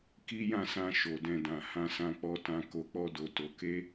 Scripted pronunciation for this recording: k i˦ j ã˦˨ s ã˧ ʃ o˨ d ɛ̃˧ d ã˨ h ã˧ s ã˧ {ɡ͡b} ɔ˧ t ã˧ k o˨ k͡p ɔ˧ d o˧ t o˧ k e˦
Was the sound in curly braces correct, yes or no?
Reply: no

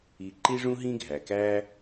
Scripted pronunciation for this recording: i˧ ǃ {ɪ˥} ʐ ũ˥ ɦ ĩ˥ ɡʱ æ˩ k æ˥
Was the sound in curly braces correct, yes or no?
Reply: no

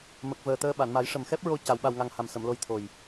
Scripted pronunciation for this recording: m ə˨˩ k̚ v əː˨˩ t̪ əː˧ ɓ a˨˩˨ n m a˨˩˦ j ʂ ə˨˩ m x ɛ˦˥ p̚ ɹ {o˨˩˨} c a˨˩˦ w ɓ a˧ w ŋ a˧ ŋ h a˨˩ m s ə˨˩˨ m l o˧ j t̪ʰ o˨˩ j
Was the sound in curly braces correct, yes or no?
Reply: no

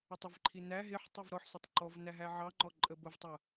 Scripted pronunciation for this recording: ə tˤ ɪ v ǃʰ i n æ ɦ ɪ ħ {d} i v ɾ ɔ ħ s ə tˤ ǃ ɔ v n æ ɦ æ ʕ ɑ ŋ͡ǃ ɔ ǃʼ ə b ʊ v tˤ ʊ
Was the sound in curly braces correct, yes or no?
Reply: no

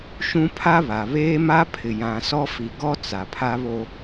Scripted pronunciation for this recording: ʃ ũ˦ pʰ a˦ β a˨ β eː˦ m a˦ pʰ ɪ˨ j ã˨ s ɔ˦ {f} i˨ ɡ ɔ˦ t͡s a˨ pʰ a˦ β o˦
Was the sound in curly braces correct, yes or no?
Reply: yes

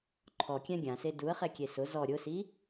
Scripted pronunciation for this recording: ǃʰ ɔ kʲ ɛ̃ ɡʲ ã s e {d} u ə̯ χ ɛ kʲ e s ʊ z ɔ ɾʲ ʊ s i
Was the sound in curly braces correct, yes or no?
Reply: yes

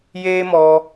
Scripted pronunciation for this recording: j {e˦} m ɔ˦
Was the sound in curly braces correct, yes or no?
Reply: no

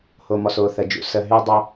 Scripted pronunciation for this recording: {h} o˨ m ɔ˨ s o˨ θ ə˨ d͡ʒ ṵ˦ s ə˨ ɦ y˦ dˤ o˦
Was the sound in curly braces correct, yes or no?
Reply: yes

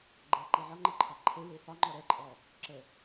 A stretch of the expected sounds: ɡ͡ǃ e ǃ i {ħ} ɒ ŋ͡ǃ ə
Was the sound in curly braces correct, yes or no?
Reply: no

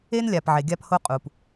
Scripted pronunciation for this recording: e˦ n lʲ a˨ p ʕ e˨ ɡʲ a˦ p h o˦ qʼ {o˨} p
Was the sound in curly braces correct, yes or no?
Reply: no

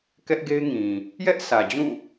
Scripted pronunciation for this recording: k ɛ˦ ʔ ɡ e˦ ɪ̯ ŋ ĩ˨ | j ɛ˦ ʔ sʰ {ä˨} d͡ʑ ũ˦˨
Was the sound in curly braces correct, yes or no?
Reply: yes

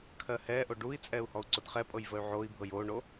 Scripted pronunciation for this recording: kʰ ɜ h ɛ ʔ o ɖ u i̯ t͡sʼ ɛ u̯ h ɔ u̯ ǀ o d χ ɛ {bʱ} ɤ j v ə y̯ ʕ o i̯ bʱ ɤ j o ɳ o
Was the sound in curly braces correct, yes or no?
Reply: no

